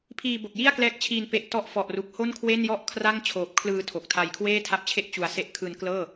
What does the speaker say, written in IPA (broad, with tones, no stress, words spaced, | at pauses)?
pʰiː˧bo˨˩k̚ji˥˩a̯klɛː˦˥k̚ t͡ɕʰiː˧n pe˨˩ʔ tɔ˦˥ʔfɔ˨˩ʔru˨˩k̚ ho˥˩nkʰwe˥˩njɔ˥˩ʔ kʰra˥˩ŋ t͡ɕʰoː˨˩p̚kʰlɯː˧ tʰo˨˩k̚tʰa˧j kʰweː˥˩tʰa˦˥p̚t͡ɕʰe˥˩ʔ t͡ɕu˧a̯ se˦˥ʔkʰɯː˧nklɤː˥˩